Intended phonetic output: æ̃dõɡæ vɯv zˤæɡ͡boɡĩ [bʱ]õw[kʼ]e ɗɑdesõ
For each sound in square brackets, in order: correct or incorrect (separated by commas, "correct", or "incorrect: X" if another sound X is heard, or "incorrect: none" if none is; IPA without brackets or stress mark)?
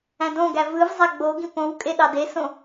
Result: incorrect: p, correct